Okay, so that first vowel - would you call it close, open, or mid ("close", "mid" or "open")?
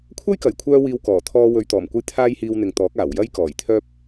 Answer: open